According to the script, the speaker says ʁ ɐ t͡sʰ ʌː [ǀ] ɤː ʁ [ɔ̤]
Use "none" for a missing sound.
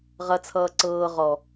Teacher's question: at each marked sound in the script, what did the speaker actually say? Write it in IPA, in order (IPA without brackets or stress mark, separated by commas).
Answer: ǀ, ɔ